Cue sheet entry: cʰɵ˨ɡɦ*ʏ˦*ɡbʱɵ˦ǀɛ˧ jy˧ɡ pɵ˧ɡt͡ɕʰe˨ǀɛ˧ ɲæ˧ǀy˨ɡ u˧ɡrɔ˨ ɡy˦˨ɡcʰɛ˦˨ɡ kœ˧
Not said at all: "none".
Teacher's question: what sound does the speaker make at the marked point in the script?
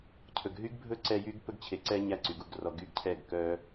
y˦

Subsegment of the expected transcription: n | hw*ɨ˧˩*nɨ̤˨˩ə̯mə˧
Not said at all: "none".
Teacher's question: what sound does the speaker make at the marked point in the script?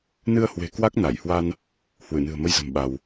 ɨ˧˩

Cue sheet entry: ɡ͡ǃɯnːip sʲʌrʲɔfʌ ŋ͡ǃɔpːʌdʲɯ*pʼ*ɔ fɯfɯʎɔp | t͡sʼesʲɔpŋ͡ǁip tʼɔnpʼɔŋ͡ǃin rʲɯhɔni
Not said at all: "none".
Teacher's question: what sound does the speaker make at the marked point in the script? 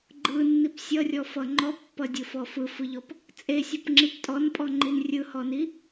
f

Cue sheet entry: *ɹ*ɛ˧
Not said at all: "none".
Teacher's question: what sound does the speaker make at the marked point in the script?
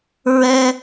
ɹ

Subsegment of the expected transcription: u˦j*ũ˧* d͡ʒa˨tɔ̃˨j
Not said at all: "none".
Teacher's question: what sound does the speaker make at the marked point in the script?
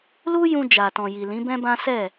ũ˧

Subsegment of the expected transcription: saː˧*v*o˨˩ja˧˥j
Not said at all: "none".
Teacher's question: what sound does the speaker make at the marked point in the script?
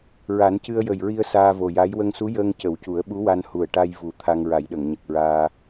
v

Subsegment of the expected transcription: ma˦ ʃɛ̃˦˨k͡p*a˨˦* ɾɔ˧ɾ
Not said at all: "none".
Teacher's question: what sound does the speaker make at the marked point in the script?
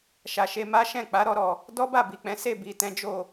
a˨˦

